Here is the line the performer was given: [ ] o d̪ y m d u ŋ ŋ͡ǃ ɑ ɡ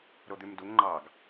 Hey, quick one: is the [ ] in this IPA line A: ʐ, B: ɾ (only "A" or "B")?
B